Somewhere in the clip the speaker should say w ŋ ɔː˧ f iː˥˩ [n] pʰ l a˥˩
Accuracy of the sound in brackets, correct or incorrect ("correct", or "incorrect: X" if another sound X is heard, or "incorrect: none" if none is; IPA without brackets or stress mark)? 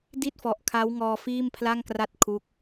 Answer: incorrect: m